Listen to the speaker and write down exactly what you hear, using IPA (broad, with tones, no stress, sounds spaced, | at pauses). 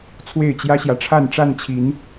t͡sʰ w e˥˨ ɪ̯ t͡ɕ j ä˦ ɕ j ä˨ ʈ͡ʂʰ a˥˨ n ʈ͡ʂ a˥˨ n t͡ɕʰ i˨˦ n